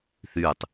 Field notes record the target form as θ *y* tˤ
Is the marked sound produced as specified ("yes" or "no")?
yes